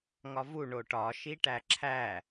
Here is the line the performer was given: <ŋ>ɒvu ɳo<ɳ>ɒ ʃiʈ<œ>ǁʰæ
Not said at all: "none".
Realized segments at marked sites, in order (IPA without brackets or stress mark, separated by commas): ŋ, ʈ, æ